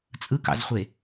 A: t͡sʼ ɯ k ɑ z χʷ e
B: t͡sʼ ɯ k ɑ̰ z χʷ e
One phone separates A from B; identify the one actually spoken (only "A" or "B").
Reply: B